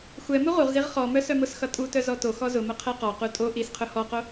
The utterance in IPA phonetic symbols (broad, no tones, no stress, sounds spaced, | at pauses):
xʷ ɛ m u ʁ u ʁ z i ʁ χ ɔ m œ s œ m ʊ s x ʌ tʼ u t œ z ɔ t o x ɔ z ʊ m ʊ qʰ ɛ q ɔ q u tʼ o ʔ i s qʰ ʊ h ɔ q o